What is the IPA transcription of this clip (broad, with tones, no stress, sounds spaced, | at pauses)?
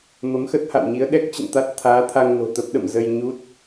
m ə˨˦ m x ə˦˥ t̚ h a̰˧˨ w ɲ i˨˦ ə̯ ɗ ɛ˦˥ k̚ t͡ɕ ə̰˧˨ n t̪ a˦˥ t̚ t̪ʰ aː˨˦ t̪ʰ a˧ ŋ n o̤˨˩ t̪ ə˦˥ p̚ ɗ ə̰˧˨ m z ə˧ j ɲ u˦˥ t̚